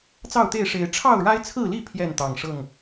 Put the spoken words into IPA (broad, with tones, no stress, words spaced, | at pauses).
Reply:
t͡sɑ˥˨ʊ̯t̪e˥˨ɪ̯ʂe˨˦ɪ̯ ʈ͡ʂʰɑ˥˨ʊ̯ɻa˦ɪ̯t͡sʰɹ̩˥˨li˥˨ pʰjɛ˥˨nt̪ɑ˨˩ŋʂɤ˥˨ŋ